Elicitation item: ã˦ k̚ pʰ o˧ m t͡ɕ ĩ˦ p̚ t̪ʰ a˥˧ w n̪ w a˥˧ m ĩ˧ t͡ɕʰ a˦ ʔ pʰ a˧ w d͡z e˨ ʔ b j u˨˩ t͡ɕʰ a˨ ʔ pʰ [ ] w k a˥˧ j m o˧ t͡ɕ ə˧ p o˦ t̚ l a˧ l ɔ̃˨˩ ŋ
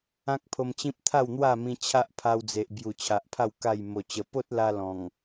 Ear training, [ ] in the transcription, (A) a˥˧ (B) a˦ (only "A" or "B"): A